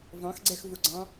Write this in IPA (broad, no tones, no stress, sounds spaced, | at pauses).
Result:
v ɑ̃ x ɡ͡ǀ ɛ x v ʊ ɡ͡ǀ ɑ̃